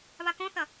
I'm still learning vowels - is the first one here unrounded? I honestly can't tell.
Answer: yes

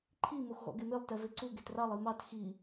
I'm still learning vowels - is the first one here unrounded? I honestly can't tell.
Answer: yes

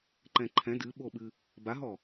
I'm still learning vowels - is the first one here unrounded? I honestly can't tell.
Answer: yes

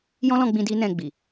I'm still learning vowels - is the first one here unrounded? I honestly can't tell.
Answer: no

